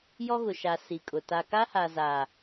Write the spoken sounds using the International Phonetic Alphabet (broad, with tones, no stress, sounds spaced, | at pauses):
j ɔ˦ ɣ ʊ˨ ʃ a˨ s i˨ kʼ ʊ˨ t a˨ k a˦ h a˨ z a˨